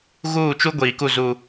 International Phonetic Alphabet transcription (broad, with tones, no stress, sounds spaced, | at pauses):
ɣ uː˦˨ t͡ʃ u˦ ɡʷ iː˨ k u˦˨ z u˦